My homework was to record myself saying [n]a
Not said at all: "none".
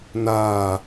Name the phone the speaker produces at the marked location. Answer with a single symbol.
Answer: n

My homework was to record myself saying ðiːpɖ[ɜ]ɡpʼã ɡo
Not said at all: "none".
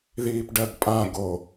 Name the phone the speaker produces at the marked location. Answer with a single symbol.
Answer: ɜ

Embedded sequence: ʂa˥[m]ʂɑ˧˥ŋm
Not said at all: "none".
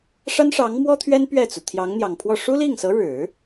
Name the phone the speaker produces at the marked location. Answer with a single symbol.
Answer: n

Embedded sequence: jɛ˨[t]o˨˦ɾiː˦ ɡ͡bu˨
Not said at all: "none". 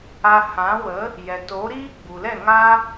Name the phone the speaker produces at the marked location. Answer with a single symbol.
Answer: t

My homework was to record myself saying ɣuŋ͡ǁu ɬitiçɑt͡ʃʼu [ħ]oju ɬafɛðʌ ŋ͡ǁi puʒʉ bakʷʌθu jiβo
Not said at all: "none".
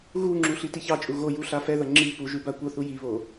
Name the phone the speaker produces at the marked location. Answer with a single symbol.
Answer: ɣ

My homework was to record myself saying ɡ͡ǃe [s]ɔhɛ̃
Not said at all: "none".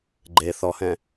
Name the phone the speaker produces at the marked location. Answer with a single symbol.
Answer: θ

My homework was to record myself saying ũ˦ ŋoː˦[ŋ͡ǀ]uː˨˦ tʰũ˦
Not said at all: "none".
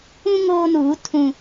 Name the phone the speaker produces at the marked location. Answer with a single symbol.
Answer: n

